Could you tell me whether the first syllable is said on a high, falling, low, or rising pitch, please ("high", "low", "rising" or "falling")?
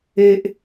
high